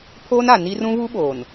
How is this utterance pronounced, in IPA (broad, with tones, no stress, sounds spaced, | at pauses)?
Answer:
pʰ oː˦ n a˨ n i˦ r ũ˦ β u˦ ɓ oː˨ n